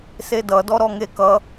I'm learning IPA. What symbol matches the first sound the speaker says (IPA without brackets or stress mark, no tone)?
s